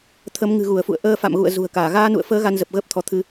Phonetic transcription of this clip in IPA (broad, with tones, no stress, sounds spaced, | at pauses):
t̪ʰ ə˨˦ m ŋ ɨ̤˨˩ ɣ u˧˩ ə̯ f ṵ˧˨ ə̯ ʔ əː˧ f a̰˧˨ m ɣ ṵ˧˨ ə̯ z ṳ˨˩ ə̯ k aː˧˩ ɣ aː˧ n ṵ˧˨ ə̯ f əː˨˦ ɣ a˧ n z ə˨˩ p̚ ɣ əː˦˥ p̚ t̪ʰ ɔ˨˦ t̪ʰ ɨ˧